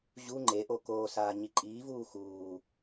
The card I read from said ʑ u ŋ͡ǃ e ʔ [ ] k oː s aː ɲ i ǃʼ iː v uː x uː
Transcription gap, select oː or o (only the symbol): o